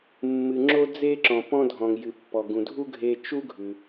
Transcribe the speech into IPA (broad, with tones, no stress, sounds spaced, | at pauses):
mː ɨ˩ ŋ͡ǁ o˧ d͡z e˧ ǁ ɔ̃˩ p ɔ̃˧ dʱ ɔ̃˩ ŋ j ɨ˩ pː ɔ˩ ɡ ũ˩ dʱ u˥ ɡʱ e˧ t͡ʃ u˥ ɡʱ ʉ˩